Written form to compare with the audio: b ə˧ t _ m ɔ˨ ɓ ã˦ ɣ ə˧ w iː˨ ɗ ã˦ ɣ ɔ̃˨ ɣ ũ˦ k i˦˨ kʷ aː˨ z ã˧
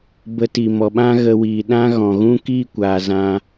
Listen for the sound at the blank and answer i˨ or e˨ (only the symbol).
i˨